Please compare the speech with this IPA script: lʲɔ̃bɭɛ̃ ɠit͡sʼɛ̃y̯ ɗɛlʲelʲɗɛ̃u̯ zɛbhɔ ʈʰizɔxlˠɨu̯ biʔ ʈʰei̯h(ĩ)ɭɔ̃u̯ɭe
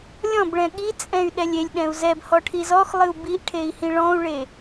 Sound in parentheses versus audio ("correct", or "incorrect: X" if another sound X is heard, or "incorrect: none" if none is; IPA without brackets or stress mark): correct